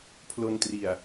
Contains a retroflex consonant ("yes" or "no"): no